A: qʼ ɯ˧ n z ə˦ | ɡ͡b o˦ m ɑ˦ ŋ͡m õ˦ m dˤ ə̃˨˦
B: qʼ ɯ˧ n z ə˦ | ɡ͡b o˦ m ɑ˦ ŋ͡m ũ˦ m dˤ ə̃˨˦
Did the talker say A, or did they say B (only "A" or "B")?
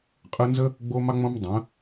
A